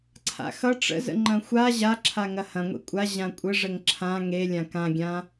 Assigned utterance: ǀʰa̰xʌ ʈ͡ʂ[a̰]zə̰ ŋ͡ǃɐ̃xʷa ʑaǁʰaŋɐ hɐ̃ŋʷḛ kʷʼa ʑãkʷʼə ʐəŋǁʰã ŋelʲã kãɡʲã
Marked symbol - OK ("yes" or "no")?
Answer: no